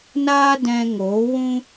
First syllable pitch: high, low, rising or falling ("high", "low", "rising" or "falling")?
high